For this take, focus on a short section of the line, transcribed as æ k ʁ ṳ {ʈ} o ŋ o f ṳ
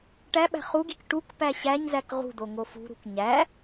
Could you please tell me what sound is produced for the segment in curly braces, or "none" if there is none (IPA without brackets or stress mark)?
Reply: d̪